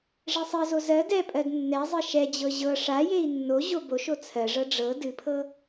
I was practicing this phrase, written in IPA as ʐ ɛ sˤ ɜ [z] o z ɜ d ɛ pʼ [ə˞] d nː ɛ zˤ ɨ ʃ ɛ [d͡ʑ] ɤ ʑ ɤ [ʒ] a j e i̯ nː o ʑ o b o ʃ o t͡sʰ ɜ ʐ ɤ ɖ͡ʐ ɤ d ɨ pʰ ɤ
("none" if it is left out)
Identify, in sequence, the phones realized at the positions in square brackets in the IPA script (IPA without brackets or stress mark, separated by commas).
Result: z, ɜ, d͡ʑ, ʂ